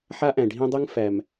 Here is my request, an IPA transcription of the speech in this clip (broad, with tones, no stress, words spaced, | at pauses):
ħa˦ʔæ̃˨ ɖʱĩ˦dˤɯ˦ŋ fæ˨m